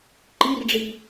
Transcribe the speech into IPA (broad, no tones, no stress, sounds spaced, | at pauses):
ǃ i r ɖ͡ʐ i